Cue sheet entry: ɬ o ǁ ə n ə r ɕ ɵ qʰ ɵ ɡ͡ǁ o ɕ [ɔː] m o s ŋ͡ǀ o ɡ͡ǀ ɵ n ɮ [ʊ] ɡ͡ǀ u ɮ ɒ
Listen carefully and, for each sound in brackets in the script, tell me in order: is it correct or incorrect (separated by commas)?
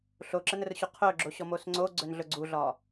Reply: incorrect, incorrect